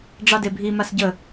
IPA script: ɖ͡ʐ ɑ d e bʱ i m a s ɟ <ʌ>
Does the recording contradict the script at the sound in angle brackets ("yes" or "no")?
yes